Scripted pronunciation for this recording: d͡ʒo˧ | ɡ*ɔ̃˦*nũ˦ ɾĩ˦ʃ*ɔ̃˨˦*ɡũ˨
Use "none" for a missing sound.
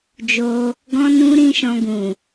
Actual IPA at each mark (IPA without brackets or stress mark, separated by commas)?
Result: ɔ̃˦, ɔ̃˧